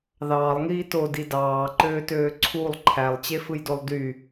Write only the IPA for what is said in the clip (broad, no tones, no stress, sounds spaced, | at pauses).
ð ɑː lˠ ŋ iː t o d i d ɑː ǃ øː t øː ǀʰ u lˠ ǃʰ æ lˠ t͡ɕ e f ɯ j d o lˠ d y